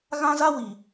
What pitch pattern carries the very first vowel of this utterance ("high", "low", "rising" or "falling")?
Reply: high